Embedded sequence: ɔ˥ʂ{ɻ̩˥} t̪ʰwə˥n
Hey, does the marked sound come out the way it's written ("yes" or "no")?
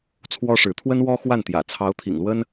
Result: no